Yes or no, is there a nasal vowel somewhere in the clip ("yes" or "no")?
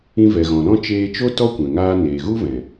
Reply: yes